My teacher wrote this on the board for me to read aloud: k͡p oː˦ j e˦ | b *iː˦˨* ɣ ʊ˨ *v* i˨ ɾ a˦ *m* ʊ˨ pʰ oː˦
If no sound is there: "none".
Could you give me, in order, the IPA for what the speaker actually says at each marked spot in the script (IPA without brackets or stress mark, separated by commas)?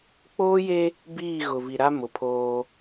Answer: iː˦˨, v, m